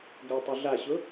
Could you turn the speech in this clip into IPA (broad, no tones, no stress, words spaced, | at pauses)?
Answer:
ɡə tˤʊɮaɕʊ